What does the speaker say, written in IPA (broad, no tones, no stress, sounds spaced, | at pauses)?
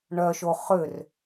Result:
ɳ œ ʃ o χ ʏ r